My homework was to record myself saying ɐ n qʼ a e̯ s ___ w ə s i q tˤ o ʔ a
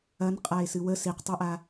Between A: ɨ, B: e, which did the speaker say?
A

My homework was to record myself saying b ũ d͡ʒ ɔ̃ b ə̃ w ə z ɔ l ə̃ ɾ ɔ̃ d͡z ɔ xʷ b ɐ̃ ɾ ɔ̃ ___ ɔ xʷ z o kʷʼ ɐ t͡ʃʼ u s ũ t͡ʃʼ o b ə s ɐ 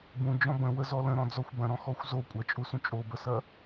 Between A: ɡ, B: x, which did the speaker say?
B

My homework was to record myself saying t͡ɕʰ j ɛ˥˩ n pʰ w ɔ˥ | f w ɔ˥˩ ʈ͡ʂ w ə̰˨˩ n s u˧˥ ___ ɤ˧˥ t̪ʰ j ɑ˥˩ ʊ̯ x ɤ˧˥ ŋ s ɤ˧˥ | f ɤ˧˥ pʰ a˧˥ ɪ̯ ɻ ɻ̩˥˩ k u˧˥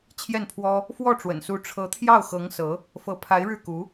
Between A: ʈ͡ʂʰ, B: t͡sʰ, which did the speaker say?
A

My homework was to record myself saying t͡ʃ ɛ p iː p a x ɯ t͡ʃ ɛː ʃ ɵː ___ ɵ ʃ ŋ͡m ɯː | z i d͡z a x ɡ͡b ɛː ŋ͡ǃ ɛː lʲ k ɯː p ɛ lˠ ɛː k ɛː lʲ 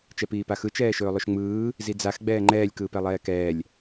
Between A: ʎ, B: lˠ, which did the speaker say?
B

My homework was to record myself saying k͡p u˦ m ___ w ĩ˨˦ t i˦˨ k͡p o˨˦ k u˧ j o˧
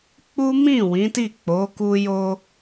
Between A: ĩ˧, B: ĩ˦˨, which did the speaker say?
B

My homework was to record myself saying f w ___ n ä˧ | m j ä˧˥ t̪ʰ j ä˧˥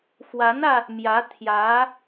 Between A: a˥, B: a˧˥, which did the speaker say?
B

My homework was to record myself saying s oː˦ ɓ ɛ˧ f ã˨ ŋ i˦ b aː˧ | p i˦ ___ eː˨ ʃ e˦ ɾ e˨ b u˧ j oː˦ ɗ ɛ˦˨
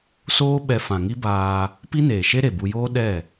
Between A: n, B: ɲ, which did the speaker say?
A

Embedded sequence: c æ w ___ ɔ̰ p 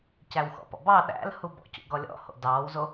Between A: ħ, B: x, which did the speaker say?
B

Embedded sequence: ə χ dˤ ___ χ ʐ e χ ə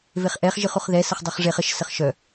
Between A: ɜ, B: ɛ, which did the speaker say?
A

